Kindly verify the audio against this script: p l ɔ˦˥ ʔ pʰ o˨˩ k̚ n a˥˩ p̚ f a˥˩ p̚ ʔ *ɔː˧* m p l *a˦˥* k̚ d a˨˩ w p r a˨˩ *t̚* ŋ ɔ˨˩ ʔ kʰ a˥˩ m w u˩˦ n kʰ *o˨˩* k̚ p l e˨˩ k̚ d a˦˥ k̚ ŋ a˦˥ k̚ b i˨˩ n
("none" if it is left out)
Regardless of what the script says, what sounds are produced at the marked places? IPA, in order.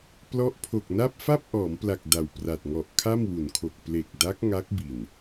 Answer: ɔː˩˦, a˨˩, t̚, o˨˩

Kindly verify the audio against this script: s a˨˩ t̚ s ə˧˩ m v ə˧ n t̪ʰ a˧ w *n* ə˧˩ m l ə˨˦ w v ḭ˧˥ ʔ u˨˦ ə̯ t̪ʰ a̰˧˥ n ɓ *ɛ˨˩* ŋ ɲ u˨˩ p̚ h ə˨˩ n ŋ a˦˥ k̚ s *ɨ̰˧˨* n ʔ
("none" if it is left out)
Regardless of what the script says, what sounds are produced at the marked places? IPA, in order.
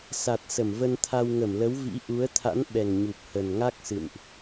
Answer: ŋ, ɛ˨˩, ɨ̰˧˨

